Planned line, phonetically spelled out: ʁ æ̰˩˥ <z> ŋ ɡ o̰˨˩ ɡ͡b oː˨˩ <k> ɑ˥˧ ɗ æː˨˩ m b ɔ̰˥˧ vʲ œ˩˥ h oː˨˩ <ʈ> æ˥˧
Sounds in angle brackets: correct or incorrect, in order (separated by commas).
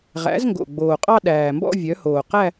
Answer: correct, incorrect, incorrect